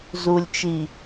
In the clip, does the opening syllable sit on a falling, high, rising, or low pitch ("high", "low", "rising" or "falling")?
low